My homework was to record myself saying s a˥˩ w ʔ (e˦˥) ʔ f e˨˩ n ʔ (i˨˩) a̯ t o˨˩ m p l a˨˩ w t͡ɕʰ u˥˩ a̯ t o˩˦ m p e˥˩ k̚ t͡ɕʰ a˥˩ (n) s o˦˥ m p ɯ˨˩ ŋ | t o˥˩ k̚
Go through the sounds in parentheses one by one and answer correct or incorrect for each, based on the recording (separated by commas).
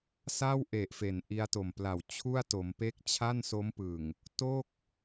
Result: incorrect, incorrect, correct